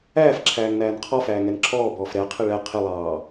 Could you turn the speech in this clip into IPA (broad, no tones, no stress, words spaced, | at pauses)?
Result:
æːfǁʰæːŋnæːn qʰɔfæːŋɛn ǁʰɔːbɔːf ɾɛqʰɪ ɭɛ qʰɪlˠɑː